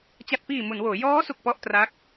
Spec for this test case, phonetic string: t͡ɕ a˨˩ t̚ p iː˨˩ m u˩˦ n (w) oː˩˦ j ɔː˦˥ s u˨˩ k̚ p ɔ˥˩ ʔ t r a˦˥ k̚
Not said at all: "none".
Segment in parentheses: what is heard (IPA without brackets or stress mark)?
w